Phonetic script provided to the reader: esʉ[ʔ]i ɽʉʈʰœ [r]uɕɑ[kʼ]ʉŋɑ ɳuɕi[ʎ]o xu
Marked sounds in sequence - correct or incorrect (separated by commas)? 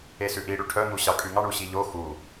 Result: correct, incorrect, correct, correct